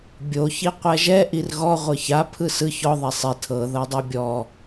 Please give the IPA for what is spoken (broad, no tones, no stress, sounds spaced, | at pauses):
bʲ o ç i qʷ ɛ ʒ ɛ ʔ i r ɣ ɔ ʁʷ ɤ ç a pʰ ɯ s ɯ ç ɔ ðˤ ɛ sˤ i tʰ ɤ ð ɤ dˤ o bʲ ɔ